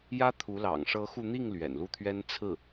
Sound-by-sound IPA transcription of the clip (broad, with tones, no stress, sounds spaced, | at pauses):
j ä˥ t̪ʰ u˧˥ l ɑ̰˨˩ ŋ ʂ ɤ˧˥ x u˧ n̪ i˥˩ ŋ l ɥ ɛ̰˨˩ n l u˥˩ t̪ʰ ɥ ɛ˥ n t͡sʰ ɹ̩˥˩